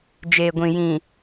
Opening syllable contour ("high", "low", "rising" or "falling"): low